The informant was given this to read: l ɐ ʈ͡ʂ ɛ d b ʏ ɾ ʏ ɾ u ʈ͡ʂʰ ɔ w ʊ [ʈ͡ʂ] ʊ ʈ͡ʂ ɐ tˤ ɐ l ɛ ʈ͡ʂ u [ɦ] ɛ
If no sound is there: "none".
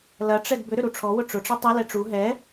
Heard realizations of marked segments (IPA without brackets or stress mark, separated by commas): ʈ͡ʂ, ɦ